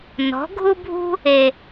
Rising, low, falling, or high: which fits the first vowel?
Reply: rising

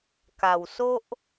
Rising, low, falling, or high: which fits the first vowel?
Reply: low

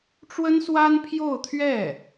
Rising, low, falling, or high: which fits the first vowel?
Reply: high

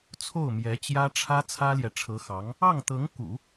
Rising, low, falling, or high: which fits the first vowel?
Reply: falling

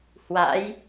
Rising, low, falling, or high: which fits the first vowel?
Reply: rising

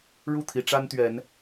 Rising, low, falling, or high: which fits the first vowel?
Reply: falling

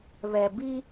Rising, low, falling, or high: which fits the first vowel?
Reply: low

